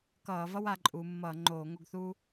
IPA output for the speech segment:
k ʌː˧˩˧ v ʌ˥ w a˩˧ ǃʼ uː˩˧ mː ʌː˧˩˧ ŋ͡ǃ oː˧˩˧ ŋ o˦˨ ɡ θ uː˥

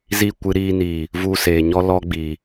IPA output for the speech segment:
z i˦˨ kʷ ɨ˧ ɾ iː˧ n iː˨ | v u˧ s eː˨ ɲ ɔ˦ l ɔ˦ ɡ͡b iː˨

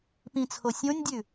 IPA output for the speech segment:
p ĩ t͡sʰ o sʲ õ nʲ dʲ ʉ

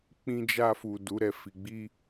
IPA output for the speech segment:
k͡p ĩ˧ d͡ʒ a˧ f u˨ d u˨˦ ɾ ɛ˦˨ f i˨ ɡ͡b i˧

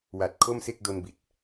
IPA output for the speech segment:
w a˨˩ t̚ kʰ o˥˩ m s e˥˩ k̚ d o˧ n b i˨˩ t̚

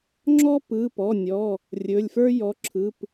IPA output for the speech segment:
ŋ͡ǁ ɔ˥ p ɯ˩˧˩ p ɔ˩˧˩ nʲ ɔ˩˧˩ | rʲ ɵ˩˧˩ lʲ f ə˞˥ j ɔ˩˧˩ ǁʰ ɯ˩˧˩ p

